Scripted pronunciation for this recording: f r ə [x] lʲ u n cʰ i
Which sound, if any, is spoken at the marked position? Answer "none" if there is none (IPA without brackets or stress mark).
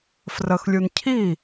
x